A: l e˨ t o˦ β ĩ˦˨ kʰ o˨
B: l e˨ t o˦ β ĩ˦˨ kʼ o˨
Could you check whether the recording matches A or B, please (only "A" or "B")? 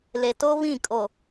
B